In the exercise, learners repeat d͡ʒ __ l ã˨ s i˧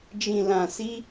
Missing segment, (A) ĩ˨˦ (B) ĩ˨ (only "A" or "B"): B